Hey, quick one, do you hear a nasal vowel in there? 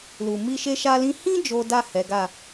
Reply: yes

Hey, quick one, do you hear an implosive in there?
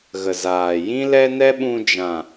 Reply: yes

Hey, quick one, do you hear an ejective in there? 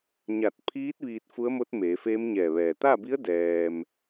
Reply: no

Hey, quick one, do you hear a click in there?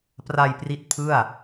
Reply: no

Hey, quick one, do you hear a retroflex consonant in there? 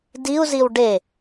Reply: yes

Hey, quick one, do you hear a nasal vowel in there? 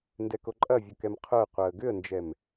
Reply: no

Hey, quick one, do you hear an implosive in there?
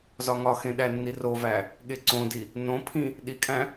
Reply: yes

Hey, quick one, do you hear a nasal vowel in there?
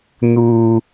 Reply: no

